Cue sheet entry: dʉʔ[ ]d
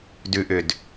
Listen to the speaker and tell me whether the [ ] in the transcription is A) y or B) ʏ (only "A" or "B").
B